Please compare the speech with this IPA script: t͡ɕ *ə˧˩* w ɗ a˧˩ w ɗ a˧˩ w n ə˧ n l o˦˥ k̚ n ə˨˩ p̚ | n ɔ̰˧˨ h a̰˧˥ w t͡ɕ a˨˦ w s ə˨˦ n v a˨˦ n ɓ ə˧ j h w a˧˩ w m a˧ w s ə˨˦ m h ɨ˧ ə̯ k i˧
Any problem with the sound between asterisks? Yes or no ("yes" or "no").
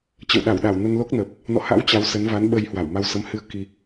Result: yes